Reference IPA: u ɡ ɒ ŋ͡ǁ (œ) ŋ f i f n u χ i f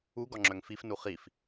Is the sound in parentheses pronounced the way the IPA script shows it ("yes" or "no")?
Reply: yes